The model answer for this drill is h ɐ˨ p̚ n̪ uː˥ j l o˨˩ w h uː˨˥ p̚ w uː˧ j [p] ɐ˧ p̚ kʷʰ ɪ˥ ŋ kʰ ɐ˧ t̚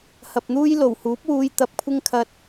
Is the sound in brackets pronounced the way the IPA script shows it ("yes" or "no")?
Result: no